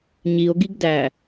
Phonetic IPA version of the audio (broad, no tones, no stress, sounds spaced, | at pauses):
ɲ i o̯ ɡ i ɡ d æ